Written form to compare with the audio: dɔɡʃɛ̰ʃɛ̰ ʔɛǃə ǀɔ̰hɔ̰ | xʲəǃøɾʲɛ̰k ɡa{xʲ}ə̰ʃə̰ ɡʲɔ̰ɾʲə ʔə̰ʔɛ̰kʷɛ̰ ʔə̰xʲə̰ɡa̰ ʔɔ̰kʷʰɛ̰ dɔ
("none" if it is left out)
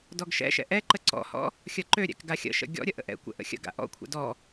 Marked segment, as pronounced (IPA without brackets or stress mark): xʲ